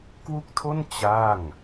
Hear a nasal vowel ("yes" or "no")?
no